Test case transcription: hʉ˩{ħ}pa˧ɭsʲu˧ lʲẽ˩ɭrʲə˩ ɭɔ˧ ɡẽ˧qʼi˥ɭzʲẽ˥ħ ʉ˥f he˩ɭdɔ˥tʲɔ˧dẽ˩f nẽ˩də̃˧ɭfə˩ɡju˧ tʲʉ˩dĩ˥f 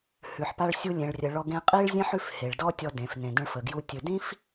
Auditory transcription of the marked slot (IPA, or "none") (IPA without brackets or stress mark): ħ